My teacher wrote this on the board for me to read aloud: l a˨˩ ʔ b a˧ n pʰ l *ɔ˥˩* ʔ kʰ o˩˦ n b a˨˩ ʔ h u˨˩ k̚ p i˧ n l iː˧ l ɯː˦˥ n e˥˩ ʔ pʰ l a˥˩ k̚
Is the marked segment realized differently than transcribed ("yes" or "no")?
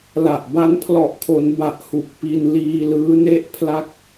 yes